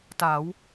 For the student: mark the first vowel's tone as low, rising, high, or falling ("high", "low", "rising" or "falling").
rising